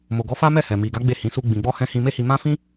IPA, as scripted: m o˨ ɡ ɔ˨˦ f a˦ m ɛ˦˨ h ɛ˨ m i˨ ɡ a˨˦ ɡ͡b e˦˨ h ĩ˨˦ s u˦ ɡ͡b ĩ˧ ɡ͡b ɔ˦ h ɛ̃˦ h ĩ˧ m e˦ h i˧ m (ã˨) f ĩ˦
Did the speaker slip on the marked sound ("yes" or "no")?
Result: yes